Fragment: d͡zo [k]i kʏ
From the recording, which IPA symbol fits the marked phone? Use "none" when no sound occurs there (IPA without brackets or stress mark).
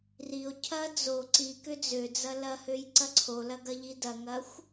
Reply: ǀ